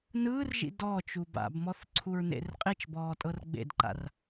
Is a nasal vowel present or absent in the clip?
absent